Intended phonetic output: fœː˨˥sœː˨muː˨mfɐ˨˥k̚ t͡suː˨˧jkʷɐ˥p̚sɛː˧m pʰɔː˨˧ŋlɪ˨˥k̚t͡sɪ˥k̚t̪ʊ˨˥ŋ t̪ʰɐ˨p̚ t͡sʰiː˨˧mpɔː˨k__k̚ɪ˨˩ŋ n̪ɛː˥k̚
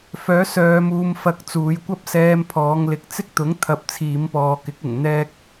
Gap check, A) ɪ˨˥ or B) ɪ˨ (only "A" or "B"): A